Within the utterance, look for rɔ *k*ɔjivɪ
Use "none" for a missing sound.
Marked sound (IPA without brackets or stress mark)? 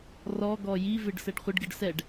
ɡ